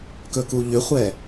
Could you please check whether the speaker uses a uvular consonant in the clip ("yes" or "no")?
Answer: yes